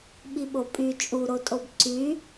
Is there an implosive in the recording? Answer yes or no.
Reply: yes